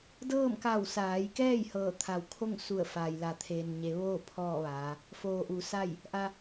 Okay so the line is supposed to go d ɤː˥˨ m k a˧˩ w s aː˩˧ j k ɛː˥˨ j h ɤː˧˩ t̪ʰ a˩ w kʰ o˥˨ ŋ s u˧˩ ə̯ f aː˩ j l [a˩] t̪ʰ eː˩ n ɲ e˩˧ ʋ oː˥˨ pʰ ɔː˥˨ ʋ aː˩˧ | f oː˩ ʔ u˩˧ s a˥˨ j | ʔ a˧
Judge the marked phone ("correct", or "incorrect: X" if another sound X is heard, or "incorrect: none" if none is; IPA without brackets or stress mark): correct